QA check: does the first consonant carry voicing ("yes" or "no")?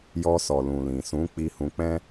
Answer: yes